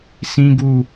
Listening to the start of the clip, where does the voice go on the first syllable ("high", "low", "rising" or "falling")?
high